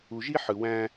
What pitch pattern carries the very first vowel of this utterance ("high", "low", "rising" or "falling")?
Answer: low